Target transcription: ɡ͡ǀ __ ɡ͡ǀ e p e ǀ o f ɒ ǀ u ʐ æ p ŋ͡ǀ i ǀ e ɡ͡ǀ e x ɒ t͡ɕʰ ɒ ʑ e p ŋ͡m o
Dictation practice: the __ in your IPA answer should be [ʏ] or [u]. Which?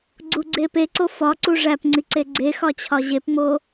u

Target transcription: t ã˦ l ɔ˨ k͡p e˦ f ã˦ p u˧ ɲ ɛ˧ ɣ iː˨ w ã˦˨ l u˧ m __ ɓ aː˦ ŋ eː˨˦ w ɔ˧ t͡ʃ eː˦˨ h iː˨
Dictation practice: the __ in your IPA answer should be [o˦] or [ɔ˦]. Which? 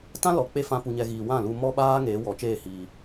ɔ˦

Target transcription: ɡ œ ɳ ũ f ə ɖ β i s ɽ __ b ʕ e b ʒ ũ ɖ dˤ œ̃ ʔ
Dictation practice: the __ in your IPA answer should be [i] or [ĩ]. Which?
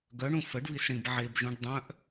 ĩ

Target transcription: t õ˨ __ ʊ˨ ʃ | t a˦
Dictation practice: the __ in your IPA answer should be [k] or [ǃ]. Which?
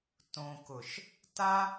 k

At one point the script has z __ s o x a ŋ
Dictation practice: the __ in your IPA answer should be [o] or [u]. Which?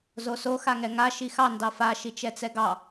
o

